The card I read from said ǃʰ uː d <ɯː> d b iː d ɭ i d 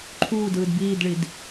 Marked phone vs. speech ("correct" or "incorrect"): correct